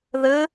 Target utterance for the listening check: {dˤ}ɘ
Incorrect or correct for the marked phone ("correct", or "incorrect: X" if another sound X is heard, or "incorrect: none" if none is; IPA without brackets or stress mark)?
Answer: incorrect: ð